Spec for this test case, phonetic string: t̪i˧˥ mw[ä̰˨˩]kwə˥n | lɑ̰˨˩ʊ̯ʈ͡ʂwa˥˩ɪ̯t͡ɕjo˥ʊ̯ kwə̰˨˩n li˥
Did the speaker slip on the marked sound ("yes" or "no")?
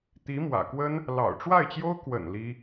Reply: no